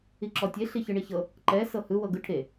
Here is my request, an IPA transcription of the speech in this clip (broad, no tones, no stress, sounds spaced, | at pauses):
i ǁ ɔ tʲ e ɬ i ç ɯ ɳ i ç ɤ | ǃ ɛ s ɤ h ɯ w ɤ ɡ ɯ ʈʰ e